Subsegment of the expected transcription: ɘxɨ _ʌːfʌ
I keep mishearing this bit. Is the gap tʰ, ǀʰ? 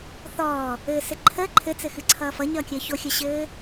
ǀʰ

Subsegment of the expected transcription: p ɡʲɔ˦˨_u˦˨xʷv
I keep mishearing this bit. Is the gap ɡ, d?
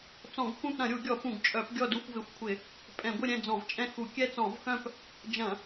d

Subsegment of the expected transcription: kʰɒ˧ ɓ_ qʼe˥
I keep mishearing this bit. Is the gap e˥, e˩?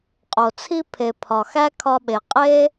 e˩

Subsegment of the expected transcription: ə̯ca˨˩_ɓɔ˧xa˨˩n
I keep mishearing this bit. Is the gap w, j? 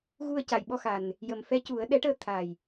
j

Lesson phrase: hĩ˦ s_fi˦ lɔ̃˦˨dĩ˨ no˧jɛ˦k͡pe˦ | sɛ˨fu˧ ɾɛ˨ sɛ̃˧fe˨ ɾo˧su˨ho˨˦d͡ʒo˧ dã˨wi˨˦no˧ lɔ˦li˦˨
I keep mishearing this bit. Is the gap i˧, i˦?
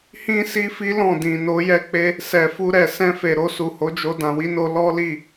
i˦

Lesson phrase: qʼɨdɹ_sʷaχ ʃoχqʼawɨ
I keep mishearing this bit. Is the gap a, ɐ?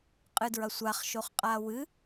ɐ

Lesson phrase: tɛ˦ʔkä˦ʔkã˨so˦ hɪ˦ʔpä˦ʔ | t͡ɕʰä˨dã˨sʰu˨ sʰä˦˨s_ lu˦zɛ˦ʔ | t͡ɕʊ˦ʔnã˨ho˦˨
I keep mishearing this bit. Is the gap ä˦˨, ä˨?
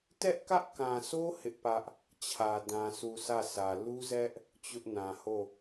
ä˨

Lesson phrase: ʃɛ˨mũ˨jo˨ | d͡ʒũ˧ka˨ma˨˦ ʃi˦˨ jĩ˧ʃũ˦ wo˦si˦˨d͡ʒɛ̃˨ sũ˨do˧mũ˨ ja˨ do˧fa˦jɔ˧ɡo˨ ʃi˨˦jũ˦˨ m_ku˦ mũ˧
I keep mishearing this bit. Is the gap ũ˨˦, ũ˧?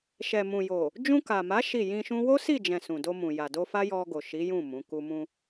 ũ˨˦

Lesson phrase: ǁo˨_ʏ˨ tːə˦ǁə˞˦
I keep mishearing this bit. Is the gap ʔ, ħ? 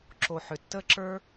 ħ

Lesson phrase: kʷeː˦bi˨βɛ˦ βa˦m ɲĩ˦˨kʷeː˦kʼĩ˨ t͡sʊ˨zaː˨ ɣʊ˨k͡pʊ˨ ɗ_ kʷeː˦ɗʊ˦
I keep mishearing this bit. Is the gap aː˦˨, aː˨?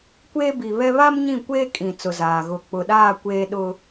aː˦˨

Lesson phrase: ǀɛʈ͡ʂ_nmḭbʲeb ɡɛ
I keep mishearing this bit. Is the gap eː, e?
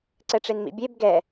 e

